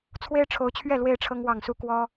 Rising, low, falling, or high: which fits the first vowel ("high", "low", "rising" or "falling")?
high